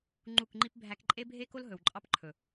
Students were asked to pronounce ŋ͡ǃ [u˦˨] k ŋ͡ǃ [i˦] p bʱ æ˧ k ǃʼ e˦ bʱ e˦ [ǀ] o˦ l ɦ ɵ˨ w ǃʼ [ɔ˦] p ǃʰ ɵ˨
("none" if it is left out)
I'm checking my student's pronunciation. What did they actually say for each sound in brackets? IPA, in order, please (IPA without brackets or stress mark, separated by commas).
u˦˨, i˦, k, ɑ˦